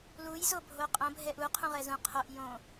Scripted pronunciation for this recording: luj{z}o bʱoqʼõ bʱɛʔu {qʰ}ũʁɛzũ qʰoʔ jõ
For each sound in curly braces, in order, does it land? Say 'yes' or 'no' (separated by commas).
yes, yes